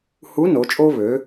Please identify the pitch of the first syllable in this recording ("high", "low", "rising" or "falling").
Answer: rising